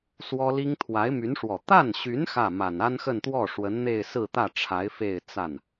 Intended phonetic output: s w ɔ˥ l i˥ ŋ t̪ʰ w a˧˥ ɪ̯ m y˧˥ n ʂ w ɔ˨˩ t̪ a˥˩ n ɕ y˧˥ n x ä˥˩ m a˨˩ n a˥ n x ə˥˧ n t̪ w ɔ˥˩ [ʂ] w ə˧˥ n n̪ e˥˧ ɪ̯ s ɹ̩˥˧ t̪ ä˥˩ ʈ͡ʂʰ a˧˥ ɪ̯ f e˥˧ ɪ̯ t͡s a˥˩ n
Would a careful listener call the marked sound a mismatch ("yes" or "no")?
no